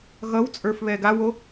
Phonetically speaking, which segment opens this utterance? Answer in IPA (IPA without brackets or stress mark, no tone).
ɣ